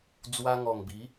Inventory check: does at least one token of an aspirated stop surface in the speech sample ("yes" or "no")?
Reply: no